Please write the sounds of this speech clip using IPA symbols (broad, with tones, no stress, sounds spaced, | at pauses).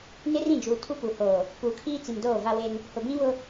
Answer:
n ɪ˦ r ĩ˦˨ d͡ʒ uː˨ tʰ u˦ p u˨ h oː˨ | p uː˨ kʰ iː˦ t͡s i˨ m d oː˦˨ v a˦ w e˦ n | h ʊ˨ b ĩ˦ β ʊ˦